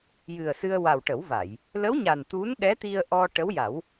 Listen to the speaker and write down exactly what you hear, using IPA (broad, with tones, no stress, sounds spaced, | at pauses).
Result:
j ɨ˨˩ ə̯ s ɨ˧ ə̯ w a˨˩ w ʈ ə˨˩˦ w v a˨˩˨ j | l ə˧˥ w ɲ a˨˩ n t̪ u˧˥ n ɗ ɛ˧˥ t̪ i˧ ə̯ ʔ ɔ˧ ʈ ə˧˥ w j a˨˩˦ w